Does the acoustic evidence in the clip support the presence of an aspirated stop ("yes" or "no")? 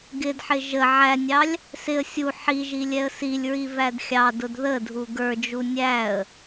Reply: no